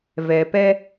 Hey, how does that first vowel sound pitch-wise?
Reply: low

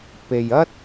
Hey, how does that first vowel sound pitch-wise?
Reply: low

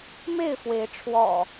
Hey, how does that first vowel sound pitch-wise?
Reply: falling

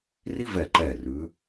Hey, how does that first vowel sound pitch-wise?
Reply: high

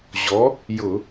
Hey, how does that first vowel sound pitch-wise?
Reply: rising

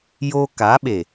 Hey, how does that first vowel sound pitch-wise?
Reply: high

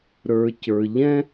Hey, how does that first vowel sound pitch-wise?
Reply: low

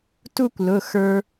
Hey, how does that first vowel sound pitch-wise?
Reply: falling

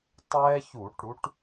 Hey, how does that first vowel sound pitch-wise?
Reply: high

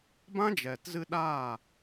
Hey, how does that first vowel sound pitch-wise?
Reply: high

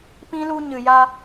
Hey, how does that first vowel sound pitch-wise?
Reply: high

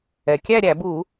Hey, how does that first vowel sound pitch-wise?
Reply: low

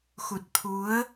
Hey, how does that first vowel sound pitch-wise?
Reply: low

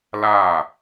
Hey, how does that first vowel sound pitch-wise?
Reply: falling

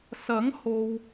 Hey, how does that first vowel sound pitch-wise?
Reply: rising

